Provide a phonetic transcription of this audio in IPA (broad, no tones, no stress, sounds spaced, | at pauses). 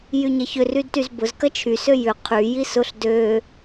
j y ɲ ɐ ç ʏ r y d t y z b ʊ z k ɐ t͡ʃʰ y s ø j ʏ qʰ y j i s ʊ ɬ d ø